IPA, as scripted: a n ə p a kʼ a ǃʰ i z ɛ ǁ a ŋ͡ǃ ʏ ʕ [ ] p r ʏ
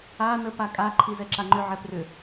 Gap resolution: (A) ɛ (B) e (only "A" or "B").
A